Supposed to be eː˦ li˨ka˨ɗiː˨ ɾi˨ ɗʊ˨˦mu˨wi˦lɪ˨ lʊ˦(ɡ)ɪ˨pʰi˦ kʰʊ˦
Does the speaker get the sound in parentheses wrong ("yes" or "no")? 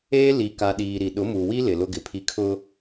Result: no